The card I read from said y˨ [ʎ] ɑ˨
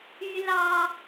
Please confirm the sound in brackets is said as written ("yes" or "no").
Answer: no